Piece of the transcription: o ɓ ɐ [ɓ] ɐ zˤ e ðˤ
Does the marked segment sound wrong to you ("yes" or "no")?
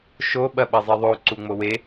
no